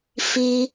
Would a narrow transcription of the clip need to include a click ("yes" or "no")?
no